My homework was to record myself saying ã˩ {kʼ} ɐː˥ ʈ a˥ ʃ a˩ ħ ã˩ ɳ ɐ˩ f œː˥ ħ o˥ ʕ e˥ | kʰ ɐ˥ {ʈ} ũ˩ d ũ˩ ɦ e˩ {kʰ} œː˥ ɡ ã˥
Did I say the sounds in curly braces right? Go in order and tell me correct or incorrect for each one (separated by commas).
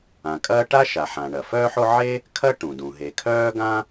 correct, correct, correct